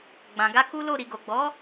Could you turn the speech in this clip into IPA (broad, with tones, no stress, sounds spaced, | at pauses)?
ɡ͡b ã˨ ɡ a˧ k u˦ l o˦˨ ɾ i˨ ɡ o˨ ɡ͡b ɔ˨˦